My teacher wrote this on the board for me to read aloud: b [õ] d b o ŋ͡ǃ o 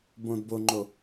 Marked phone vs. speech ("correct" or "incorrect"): correct